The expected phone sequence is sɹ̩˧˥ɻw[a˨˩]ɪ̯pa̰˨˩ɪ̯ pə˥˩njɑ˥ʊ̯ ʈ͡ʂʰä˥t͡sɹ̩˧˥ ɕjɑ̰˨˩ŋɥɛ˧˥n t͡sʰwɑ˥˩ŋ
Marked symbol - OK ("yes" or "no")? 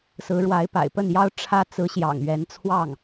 no